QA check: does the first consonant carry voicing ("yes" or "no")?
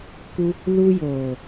no